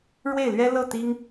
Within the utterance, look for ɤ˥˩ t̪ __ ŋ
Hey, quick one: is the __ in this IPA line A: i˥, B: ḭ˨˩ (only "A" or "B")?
A